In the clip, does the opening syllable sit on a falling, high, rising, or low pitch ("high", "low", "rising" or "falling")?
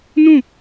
falling